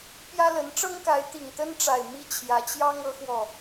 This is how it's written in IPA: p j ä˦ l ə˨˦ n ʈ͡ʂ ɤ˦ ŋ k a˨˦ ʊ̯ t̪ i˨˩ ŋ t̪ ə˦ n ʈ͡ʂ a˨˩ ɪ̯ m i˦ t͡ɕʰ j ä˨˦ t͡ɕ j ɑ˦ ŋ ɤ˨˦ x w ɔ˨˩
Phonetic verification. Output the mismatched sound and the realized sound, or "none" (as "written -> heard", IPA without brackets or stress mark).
ʊ̯ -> ɪ̯